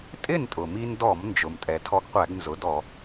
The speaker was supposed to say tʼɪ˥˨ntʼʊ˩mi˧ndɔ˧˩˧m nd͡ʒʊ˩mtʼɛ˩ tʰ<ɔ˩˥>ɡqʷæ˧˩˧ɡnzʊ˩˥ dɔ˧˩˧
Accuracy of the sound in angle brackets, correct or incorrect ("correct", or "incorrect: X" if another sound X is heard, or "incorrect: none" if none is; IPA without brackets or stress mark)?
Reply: incorrect: ɔ˧